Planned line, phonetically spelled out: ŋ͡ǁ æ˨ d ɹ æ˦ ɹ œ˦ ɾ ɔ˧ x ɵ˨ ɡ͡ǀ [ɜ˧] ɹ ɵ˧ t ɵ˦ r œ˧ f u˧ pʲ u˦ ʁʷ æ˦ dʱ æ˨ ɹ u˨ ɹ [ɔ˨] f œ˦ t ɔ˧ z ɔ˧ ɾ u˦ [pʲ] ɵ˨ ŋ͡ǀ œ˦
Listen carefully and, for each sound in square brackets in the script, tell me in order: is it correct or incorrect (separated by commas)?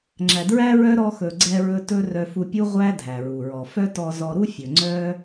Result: incorrect, correct, incorrect